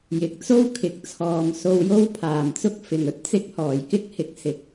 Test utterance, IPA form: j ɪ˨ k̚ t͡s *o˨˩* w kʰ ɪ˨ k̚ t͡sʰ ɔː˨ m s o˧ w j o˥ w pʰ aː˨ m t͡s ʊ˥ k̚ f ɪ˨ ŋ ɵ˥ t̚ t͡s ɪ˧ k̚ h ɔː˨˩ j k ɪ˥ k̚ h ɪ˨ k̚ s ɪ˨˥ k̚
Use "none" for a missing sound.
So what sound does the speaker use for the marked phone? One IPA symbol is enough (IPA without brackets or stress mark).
o˥